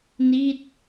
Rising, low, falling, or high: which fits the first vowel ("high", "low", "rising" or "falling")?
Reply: falling